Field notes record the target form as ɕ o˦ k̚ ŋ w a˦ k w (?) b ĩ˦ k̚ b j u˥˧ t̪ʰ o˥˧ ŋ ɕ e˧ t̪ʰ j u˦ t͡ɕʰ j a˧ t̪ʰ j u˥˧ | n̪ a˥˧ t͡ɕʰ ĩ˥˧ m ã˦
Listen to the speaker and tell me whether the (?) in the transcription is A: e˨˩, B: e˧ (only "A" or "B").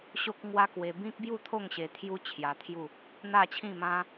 B